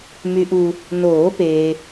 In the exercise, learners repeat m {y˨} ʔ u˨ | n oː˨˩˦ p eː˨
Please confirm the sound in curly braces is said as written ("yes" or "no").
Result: yes